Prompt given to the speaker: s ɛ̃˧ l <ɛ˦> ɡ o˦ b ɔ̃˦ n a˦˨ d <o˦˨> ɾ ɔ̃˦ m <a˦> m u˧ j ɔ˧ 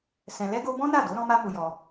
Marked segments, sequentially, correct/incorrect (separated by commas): correct, incorrect, correct